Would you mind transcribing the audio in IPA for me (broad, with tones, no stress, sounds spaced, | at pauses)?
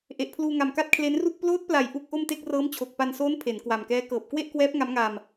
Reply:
ʔ e˨˩ ʔ pʰ l uː˧ ŋ a˨˩ m k a˦˥ t̚ kʰ l e˦˥ n r u˥˩ k̚ p l oː˦˥ t̚ p l a˨˩ j ʔ u˥˩ k̚ ʔ o˥˩ m t e˥˩ k̚ r ɤː˦˥ m t͡ɕʰ o˨˩ k̚ p a˧ n s oː˦˥ n pʰ e˩˦ n k w a˨˩ m k ɛː˦˥ k ɤː˨˩ p̚ k w e˥˩ ʔ k w ɛː˦˥ p̚ ŋ a˦˥ m ŋ aː˧ m